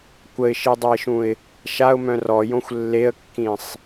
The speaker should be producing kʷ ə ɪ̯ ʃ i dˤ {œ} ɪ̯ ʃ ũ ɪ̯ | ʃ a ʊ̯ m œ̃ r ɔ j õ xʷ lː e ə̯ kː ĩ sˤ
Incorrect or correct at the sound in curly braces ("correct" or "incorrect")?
correct